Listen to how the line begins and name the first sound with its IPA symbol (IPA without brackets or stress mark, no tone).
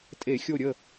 tʼ